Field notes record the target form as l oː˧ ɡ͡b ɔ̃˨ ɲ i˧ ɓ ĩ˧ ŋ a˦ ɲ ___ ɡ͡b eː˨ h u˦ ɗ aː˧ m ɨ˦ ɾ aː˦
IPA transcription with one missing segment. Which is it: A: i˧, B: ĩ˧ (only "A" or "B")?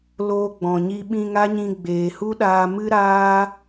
B